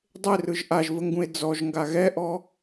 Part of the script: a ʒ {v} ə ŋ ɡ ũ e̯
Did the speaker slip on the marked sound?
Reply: no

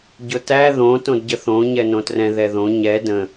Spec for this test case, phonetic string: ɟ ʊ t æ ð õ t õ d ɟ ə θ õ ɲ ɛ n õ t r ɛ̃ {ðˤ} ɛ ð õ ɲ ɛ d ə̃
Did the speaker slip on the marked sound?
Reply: yes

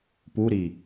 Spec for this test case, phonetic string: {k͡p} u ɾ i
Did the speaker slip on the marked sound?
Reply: yes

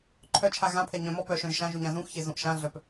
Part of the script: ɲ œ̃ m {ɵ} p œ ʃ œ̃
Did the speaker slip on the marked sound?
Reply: yes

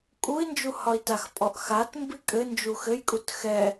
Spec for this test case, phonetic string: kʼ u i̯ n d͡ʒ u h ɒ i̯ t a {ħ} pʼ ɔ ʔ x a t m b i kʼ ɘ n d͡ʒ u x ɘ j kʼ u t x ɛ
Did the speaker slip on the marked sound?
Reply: yes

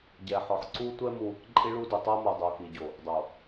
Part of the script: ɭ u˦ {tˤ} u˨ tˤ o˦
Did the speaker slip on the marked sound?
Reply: yes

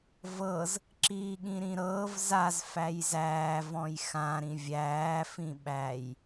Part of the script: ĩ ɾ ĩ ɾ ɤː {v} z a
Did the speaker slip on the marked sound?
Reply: no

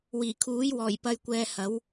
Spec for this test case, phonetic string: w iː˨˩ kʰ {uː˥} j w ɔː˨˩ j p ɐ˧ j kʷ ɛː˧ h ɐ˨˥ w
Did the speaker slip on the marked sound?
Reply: yes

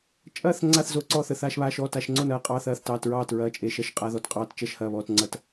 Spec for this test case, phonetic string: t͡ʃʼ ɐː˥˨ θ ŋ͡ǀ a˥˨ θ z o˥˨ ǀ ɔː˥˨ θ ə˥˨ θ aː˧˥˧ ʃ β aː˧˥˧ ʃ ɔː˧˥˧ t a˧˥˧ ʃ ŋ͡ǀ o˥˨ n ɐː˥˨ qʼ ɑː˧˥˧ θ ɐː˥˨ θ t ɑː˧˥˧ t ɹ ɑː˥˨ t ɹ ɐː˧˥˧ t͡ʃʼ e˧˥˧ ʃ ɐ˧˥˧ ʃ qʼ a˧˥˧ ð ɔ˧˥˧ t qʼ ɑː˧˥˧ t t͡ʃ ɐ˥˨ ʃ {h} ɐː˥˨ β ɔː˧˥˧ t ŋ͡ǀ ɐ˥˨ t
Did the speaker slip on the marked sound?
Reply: no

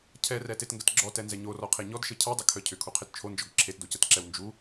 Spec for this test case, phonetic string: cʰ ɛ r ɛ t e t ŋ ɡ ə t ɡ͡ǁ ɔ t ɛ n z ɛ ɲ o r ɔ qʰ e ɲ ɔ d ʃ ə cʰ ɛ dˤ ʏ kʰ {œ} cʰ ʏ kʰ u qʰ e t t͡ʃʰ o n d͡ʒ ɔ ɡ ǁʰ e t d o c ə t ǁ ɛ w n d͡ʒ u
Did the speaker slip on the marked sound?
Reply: no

